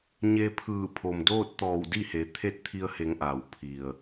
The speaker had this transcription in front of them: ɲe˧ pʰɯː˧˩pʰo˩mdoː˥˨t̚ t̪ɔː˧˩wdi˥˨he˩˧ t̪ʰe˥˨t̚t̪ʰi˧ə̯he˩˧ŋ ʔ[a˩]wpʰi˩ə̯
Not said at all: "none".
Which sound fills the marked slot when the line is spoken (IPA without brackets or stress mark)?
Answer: a˩